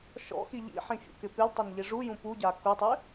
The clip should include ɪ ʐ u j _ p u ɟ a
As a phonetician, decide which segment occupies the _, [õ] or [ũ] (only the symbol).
ũ